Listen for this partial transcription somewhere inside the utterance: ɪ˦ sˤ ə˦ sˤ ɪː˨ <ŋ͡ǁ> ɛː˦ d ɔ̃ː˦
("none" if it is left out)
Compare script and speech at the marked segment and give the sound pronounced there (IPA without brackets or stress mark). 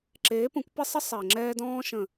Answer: ŋ͡ǁ